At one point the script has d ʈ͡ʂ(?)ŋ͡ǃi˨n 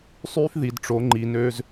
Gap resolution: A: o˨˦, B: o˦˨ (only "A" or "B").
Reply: A